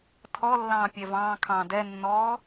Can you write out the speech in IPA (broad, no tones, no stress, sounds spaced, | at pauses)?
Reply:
tʰ ɔ lː ɑ̃ː pʲ ɛ v ɑ̃ː kʰ ɑ̃ː d ɛ nː ɔː